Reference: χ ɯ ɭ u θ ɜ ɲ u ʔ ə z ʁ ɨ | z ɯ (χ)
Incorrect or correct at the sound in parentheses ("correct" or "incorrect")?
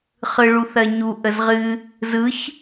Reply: incorrect